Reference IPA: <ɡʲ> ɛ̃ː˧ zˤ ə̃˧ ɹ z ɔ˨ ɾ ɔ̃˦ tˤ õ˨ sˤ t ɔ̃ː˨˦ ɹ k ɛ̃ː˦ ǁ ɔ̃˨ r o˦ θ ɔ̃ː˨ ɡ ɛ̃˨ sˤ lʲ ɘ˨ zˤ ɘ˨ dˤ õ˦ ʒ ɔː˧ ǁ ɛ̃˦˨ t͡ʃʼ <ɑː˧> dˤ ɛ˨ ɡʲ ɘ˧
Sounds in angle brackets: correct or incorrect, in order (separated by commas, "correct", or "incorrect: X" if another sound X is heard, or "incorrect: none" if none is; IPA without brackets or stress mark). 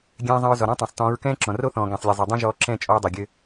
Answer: correct, incorrect: ɔː˧